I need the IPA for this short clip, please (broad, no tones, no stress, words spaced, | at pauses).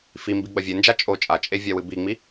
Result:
fimbi ɡ͡bɐvʲend͡ʒa t͡ʃʼo t͡ʃʼat͡ʃʼe vʲawɨbiŋ͡mi